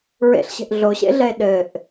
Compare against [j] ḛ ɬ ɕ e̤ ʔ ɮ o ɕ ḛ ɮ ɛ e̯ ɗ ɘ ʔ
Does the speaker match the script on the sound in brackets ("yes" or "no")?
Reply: no